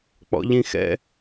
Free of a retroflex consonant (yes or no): yes